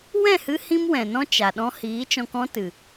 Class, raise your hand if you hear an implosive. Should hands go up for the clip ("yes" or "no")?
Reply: yes